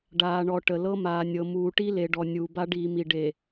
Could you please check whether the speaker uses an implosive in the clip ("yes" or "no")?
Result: no